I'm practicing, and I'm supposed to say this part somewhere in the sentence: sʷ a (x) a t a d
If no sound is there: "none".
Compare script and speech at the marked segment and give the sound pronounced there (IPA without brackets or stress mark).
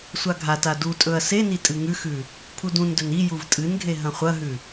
ɡʱ